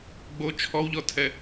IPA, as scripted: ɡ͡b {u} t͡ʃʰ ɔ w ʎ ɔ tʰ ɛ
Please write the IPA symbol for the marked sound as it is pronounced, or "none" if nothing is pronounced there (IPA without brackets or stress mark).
o